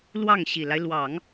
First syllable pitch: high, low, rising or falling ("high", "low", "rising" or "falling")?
falling